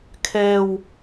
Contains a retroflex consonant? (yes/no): no